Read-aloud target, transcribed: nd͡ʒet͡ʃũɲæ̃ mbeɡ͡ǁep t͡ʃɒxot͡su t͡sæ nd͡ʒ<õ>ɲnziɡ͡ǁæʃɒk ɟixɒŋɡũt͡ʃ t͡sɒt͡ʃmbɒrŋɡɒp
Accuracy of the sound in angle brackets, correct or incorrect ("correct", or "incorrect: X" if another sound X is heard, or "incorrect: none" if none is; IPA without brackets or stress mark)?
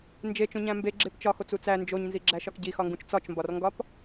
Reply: incorrect: o